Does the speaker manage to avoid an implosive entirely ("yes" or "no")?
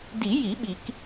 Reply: no